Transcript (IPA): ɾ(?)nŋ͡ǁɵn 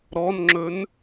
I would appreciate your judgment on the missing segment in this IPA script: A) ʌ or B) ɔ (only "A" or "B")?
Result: B